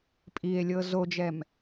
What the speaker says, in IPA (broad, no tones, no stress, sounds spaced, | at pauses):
pʼ i e̯ lʲ ɤ z o d͡ʒ ɛ m